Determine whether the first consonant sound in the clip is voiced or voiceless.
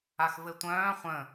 voiceless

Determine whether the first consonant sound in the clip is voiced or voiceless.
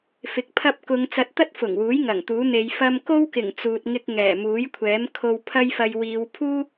voiceless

